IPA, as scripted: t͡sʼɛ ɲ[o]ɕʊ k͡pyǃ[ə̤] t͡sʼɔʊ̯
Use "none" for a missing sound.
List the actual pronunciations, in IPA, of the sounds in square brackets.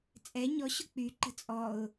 ɔ, ə̤

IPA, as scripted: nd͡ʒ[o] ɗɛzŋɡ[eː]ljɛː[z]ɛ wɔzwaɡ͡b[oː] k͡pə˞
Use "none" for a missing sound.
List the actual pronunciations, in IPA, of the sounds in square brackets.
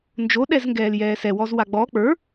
o, ɛː, s, ɔː

